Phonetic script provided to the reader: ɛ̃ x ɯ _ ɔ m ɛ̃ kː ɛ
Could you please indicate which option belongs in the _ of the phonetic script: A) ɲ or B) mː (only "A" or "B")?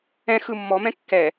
B